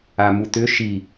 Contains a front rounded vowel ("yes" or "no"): yes